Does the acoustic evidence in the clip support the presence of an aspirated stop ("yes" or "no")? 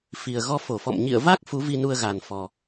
no